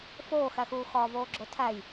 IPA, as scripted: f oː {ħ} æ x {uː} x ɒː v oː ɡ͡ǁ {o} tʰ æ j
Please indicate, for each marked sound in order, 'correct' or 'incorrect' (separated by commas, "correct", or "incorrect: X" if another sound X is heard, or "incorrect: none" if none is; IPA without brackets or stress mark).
incorrect: x, correct, correct